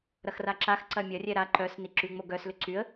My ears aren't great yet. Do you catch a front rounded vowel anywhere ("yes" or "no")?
yes